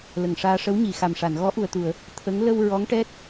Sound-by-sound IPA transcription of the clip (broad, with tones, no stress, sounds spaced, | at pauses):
l ə˨˩ ŋ ʂ aː˧ ʂ ə˧˥ w ɲ i˨˩˨ x a˨˩ m ʂ a˨˩˨ n ɣ ɔ˧˥ ʔ u˨˩ ə̯ t̪ u˨˩˨ ə̯ | t̪ʰ ə˧˥ ŋ l ə˧ w ɹ ɔ˧˥ ŋ ʈ ɛ˦˥ t̚